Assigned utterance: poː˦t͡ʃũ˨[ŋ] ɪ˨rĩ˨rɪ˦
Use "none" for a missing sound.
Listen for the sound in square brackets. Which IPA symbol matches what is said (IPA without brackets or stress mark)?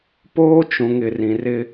ŋ